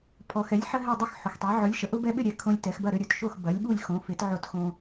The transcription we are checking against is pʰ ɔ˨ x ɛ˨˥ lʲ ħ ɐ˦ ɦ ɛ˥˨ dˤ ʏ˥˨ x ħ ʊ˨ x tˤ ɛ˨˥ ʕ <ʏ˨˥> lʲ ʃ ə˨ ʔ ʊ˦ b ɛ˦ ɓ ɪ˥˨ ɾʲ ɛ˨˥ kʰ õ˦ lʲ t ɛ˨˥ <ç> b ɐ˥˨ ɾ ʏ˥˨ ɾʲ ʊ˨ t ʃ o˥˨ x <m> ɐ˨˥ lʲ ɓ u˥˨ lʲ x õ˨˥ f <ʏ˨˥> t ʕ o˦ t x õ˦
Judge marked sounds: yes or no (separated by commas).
yes, no, no, no